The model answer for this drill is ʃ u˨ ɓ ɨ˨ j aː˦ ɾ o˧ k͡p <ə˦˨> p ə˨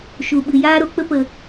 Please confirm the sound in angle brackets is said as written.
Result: no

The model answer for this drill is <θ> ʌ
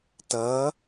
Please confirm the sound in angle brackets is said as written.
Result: no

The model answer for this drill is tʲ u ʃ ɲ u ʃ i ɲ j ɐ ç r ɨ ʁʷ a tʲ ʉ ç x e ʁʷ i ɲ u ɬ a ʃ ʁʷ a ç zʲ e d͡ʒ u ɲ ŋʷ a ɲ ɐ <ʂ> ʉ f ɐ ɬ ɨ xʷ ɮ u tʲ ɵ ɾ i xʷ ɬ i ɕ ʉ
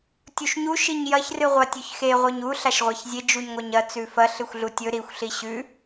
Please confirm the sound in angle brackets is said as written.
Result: no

